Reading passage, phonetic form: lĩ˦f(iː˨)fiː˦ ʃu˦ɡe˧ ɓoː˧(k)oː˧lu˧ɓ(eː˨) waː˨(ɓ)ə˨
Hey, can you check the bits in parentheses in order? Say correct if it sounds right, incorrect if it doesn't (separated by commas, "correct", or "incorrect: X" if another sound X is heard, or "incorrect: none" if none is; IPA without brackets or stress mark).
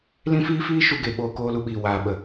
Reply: incorrect: iː˦, correct, incorrect: iː˨, correct